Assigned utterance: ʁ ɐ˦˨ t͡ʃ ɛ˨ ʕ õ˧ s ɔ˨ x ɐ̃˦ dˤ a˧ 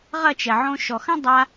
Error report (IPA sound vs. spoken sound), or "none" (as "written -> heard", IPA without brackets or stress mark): s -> ʃ